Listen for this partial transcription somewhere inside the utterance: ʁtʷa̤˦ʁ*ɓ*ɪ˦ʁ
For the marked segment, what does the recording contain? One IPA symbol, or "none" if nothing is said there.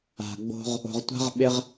ɓ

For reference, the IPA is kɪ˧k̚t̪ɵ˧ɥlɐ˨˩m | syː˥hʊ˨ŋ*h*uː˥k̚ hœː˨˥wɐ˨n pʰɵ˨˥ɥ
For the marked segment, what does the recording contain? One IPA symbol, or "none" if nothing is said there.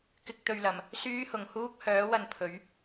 h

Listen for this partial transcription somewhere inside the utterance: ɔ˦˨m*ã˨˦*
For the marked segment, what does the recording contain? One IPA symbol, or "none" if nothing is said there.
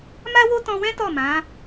ã˨˦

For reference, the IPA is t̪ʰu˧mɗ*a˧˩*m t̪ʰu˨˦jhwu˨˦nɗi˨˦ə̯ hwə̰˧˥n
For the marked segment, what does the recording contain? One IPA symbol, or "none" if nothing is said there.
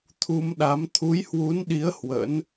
a˨˦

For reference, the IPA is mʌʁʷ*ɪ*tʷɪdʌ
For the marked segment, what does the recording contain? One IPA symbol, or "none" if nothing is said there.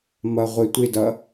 ɪ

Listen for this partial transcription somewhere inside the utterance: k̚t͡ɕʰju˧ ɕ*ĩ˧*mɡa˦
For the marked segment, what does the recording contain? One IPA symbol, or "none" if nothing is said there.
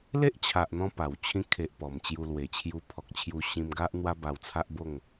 ĩ˧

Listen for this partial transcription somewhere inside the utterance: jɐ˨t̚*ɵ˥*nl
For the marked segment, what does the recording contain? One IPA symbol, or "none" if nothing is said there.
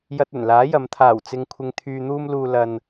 ɵ˨˩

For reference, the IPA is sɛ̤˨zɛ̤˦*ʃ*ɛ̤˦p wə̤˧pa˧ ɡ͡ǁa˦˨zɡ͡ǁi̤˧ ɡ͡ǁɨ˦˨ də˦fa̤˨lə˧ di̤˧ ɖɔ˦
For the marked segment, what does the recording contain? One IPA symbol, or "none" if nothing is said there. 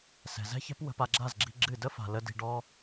ç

